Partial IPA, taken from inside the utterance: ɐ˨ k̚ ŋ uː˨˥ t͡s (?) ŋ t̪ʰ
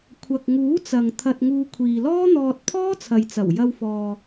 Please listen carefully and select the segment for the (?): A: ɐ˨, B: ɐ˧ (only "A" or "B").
A